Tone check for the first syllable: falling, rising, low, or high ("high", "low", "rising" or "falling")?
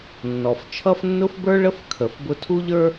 low